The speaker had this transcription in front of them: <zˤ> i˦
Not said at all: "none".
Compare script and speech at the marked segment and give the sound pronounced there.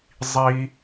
zˤ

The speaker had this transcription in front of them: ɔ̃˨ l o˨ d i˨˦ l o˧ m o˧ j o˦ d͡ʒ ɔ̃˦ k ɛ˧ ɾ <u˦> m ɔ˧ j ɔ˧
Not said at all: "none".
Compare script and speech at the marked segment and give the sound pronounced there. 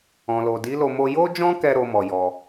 o˦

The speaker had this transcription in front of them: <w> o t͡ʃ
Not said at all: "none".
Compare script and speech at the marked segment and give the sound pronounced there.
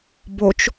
b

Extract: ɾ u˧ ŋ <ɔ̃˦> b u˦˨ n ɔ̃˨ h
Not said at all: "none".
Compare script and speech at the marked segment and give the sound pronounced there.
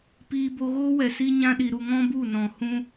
ɔ̃˦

